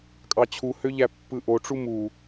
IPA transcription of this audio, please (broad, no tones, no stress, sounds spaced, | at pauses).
kʼ ɑ t͡ɕʰ u h ø ʎ æ pː ɯ ʔ o ʈ͡ʂ u m u